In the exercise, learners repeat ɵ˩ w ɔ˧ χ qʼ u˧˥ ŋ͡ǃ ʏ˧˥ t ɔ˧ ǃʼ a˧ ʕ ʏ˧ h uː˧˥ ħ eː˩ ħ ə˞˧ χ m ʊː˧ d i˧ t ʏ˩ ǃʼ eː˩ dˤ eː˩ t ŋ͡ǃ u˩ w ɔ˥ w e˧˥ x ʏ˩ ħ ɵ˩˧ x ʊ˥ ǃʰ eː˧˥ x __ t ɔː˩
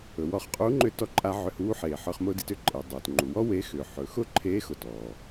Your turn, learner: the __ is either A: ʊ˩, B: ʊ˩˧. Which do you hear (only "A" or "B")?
A